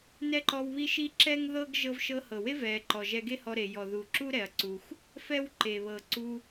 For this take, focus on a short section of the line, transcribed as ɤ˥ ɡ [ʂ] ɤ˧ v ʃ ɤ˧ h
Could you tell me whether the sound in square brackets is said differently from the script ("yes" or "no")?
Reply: yes